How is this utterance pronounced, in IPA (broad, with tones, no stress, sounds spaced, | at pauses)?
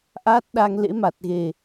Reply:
ʔ aː˦˥ t̚ ɗ a˧ ŋ l ḛ˧˥ m a˨˩ t̚ ɣ e˨˩